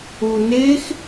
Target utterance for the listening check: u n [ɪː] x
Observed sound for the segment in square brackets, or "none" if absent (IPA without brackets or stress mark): ɪː